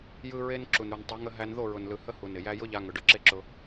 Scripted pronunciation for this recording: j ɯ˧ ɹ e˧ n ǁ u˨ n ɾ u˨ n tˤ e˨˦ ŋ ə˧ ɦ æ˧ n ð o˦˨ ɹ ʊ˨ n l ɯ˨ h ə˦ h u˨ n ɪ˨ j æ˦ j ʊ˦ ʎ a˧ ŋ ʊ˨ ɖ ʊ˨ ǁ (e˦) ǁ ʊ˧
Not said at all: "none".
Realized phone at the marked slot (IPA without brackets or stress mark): e˦